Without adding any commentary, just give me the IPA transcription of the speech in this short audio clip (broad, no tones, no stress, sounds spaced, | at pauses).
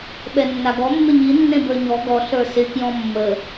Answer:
ɓ ɛ nː a ɡ ɔ mː ɪ ɲ i nː ẽ b ə˞ ɲ ɔ ɡ ɔ ɬ ə˞ s ɪ k j ɔ̃ mː ə